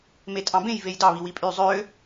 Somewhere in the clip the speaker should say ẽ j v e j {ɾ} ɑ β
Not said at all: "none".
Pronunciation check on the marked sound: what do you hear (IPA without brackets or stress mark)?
d